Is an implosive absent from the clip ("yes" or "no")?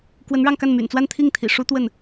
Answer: yes